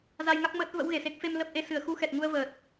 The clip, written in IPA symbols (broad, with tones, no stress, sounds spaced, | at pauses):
z a˧ j ŋ a˦˥ k̚ m əː˦˥ t̚ v ə̰˧˥ w ɣ e˧˩ s e˦˥ k̚ f e˧ m l ə˦˥ p̚ ʔ e˧ s ɨ˧˩ ə̯ x u˧ x ɛ˨˩ t̚ ŋ u˧ ə̯ v əː˨˩ t̚